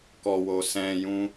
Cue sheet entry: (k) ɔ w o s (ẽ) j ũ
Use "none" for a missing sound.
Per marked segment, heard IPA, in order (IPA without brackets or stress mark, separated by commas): k, ɛ̃